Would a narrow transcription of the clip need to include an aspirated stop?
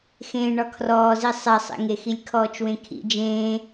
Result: yes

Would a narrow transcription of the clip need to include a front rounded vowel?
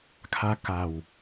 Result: no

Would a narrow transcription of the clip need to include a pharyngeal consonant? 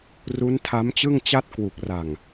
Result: no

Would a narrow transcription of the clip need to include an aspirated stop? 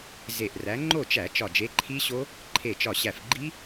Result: yes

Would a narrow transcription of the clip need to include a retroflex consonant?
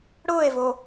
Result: yes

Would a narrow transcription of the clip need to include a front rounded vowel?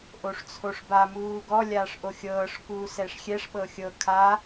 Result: no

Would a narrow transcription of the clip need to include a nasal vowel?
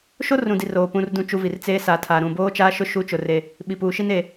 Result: yes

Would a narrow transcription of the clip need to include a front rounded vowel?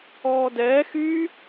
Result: yes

